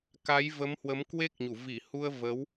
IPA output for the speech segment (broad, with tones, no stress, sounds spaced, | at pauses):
k a˨˦ j v ə˨˦ m h w ə˨˦ m k w e˦˥ k̚ ɲ u˧˩ v i˧˩ h u˧ ə̯ v ə˨˦ w